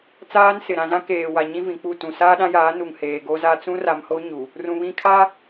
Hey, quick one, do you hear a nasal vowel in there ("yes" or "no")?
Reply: yes